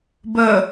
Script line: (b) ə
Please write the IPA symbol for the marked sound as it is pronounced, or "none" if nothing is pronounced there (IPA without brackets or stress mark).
b